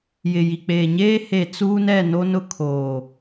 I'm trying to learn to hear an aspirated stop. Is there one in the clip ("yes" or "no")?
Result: yes